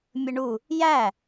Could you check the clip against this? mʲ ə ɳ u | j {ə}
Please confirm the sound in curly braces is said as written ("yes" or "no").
no